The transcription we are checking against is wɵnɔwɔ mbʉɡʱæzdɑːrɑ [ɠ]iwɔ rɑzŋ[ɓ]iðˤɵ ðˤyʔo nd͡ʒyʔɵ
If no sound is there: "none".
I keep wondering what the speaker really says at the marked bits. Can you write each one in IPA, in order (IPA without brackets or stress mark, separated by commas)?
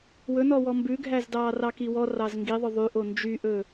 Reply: k, ɡ